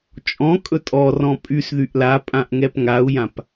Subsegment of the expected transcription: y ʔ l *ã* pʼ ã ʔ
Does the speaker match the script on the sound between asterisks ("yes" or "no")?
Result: no